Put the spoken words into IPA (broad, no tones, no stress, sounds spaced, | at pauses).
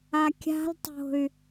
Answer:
a kʲ a̤ l tˤ o̤ y̯